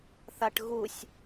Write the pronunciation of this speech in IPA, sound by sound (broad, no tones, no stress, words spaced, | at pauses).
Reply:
θaʈɣusʲ